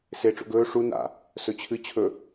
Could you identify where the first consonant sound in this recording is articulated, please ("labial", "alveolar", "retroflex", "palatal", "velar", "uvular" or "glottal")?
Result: alveolar